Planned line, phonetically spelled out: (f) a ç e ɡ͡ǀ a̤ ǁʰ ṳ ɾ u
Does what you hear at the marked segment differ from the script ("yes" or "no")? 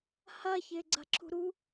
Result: yes